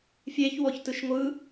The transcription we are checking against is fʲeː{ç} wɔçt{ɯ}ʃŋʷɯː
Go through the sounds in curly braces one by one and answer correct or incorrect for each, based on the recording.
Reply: correct, correct

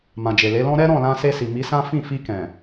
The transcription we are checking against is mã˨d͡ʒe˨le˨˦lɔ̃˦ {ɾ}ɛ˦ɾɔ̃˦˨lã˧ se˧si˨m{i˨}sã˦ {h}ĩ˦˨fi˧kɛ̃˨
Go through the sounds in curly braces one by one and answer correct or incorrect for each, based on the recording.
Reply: correct, incorrect: i˨˦, incorrect: f

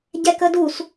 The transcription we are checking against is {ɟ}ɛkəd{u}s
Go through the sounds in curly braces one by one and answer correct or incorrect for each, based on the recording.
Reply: correct, correct

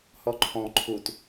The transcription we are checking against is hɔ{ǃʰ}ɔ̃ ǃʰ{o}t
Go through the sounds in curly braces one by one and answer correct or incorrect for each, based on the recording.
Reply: correct, incorrect: u

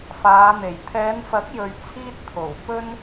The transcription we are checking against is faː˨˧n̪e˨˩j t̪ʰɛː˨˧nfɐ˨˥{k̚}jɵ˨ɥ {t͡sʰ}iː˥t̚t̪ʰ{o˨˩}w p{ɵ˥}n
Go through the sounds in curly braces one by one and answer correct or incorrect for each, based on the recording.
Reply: correct, correct, correct, correct

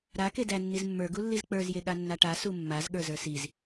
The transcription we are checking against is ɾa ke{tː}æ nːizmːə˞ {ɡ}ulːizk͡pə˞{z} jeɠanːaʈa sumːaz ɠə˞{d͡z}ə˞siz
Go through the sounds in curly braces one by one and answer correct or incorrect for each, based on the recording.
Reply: incorrect: d, correct, correct, incorrect: z

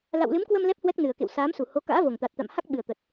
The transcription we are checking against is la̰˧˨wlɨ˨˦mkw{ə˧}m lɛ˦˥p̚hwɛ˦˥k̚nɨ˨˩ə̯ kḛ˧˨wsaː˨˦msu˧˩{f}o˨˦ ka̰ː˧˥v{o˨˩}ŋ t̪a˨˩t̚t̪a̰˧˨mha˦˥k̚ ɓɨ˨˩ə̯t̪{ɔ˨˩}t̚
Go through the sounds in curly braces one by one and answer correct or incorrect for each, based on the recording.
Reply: correct, incorrect: h, correct, incorrect: ə˨˩

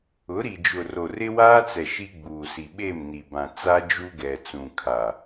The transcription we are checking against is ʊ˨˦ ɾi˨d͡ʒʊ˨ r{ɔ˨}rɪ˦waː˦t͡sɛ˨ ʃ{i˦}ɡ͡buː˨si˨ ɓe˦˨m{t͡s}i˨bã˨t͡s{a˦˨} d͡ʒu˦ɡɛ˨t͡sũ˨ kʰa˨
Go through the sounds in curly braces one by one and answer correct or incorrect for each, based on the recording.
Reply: incorrect: o˨, correct, incorrect: n, incorrect: a˦

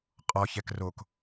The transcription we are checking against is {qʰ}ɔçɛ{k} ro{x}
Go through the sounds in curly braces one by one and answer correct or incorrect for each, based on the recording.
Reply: incorrect: qʼ, correct, incorrect: k

